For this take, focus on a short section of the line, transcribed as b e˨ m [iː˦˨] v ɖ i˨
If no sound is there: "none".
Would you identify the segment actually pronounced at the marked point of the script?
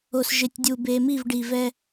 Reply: i˦˨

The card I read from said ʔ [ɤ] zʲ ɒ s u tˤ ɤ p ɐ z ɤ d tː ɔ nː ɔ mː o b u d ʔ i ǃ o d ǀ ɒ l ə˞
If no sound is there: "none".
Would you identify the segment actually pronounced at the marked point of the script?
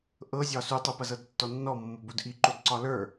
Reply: ɤ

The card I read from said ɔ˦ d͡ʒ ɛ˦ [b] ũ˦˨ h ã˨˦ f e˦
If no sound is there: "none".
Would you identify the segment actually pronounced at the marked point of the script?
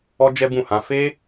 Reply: b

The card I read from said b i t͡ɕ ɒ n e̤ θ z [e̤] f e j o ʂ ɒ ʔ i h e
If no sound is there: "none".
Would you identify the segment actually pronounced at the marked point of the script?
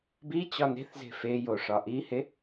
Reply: e̤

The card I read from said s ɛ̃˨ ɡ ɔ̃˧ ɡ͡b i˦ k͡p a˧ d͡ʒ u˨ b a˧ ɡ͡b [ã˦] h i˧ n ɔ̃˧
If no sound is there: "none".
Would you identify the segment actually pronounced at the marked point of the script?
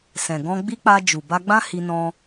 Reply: ã˦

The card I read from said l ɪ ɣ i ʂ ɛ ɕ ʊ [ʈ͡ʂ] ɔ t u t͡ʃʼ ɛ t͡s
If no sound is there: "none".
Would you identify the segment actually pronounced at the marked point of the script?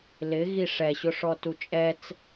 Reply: ʂ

